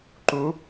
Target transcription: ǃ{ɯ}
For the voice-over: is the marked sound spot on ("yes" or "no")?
no